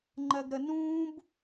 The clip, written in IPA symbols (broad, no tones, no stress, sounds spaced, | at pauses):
ŋ͡ǃ ɜ ɡ ɾ ə n ũː b